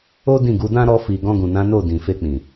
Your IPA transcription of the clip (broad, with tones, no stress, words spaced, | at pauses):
o˦ dĩ˦˨ɡu˨˦ dã˦ɾɔ˧fi˨ ɡɔ̃˧ɡũ˨nã˨˦ no˦˨ dĩ˨fe˧k͡pĩ˨